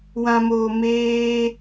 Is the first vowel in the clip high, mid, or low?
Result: low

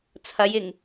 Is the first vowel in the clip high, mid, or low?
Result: low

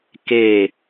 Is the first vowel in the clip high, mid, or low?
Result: mid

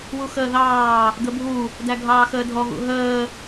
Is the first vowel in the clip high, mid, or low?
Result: high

